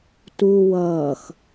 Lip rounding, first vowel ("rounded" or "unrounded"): rounded